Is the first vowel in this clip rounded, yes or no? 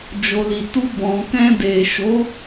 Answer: yes